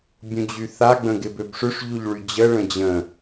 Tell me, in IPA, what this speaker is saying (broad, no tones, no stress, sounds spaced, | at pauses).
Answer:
bʲ ũ d͡ʑ y θ a ɡ͡b ə̃ ɡ ɪ b ø b ʂ ʏ ʂ ʎ u ʎ ɭ y d͡ʑ ə ɭ ə̃ d͡ʑ ə̃